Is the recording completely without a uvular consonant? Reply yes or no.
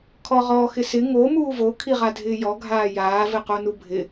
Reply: no